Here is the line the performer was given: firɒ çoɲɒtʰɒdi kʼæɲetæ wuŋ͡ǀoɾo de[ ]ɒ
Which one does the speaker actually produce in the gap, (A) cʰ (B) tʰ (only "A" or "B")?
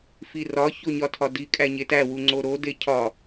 A